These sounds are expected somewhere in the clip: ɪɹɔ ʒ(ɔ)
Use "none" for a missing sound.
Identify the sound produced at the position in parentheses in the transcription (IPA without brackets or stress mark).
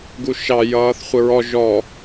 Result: ɔ